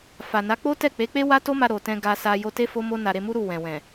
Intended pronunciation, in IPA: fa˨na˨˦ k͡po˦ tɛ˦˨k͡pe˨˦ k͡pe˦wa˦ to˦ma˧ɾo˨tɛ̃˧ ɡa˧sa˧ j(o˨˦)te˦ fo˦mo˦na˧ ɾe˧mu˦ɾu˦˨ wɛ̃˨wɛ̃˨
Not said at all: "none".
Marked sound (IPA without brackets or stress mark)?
o˧